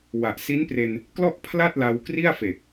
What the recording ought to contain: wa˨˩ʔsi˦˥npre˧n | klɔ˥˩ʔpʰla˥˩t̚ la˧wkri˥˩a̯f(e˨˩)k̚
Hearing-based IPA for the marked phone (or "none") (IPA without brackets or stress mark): e˨˩